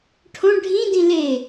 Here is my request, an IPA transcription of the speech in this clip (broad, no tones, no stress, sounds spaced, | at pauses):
ʈʰ õ ɖʱ ĩ d ĩ l e